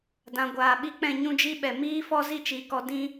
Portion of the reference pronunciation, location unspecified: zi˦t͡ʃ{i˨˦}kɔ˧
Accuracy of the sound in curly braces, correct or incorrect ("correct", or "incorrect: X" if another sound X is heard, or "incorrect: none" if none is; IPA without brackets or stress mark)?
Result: correct